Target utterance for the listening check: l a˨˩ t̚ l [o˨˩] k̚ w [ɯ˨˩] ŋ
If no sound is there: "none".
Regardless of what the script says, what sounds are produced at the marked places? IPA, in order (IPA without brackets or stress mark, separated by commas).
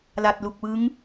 u˨˩, ɯ˦˥